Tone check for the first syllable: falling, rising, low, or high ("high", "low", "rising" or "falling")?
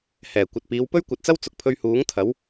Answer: low